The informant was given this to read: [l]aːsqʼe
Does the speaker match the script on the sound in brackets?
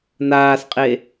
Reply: no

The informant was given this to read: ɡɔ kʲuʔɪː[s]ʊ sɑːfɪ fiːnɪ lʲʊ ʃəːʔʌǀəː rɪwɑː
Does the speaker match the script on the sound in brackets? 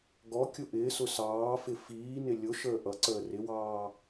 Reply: yes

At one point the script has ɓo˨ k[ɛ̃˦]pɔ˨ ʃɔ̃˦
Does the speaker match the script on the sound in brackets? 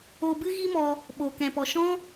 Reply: no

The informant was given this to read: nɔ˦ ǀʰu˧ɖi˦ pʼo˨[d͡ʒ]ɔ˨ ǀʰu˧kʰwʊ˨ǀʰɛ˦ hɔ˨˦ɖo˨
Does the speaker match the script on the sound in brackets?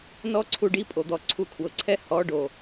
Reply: no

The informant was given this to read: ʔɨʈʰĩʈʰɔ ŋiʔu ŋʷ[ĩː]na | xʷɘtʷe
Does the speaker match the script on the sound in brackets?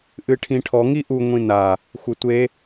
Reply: no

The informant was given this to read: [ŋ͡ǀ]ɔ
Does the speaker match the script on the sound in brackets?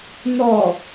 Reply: no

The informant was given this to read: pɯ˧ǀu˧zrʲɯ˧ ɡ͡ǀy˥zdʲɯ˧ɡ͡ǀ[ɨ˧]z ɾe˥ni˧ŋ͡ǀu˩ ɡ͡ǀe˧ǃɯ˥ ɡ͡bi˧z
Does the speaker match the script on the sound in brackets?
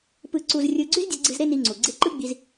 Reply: yes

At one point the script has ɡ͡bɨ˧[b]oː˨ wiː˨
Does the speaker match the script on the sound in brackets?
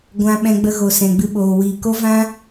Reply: no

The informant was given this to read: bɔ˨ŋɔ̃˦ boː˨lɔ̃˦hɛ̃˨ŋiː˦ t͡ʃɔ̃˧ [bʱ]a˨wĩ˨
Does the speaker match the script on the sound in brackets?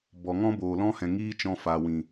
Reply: no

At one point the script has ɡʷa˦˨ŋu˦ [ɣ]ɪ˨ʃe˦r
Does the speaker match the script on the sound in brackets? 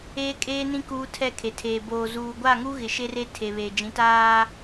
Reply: yes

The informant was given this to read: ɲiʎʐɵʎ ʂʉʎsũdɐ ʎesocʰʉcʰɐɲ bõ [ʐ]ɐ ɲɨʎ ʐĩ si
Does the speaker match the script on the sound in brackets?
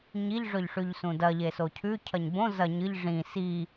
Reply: no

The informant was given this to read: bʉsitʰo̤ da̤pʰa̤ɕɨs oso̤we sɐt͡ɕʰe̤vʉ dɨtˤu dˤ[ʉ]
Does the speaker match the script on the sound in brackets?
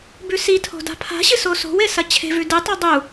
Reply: no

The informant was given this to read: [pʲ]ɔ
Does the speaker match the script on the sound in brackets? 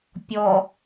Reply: yes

